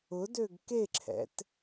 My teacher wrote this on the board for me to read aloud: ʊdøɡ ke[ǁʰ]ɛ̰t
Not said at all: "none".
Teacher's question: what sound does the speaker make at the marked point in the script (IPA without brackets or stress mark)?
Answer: ǁʰ